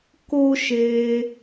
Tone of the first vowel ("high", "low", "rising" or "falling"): high